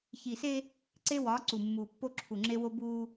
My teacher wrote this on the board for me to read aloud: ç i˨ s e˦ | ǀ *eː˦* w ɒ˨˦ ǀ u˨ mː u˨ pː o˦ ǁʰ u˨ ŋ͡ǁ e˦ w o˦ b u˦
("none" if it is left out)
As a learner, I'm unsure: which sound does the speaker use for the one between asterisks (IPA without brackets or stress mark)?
e˦